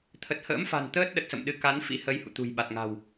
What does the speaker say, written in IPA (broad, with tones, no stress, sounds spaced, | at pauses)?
t̪ʰ ə˨˩ t̚ h ə̰ː˧˥ m f a̤˨˩ n t̪ əː˦˥ t̚ ɗ ə˨˩ t̚ s ə̰˧˨ m ɗ ɨ˨˦ k a˨˦ n f ḭ˧˥ h ə˨˦ j h ṵ˧˨ t̪ ṳ˨˩ j ɓ a˨˩ t̚ ŋ a̤˨˩ w